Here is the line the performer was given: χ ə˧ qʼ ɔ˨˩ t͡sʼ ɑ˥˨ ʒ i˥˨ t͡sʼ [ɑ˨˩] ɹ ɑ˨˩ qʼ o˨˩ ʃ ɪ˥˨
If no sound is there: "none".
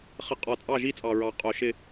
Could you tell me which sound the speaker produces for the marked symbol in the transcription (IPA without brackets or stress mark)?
ɑ˨˩